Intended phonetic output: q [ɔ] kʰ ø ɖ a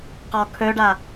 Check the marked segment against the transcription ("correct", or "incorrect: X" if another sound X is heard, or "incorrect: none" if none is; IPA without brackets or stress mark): correct